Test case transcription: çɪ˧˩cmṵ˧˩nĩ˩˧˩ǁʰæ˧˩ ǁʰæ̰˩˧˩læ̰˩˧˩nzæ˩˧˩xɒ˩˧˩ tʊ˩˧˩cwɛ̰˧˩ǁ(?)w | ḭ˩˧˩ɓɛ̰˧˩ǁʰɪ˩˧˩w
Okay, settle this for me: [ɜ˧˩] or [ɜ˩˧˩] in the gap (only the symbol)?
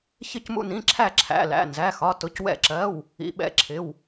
ɜ˩˧˩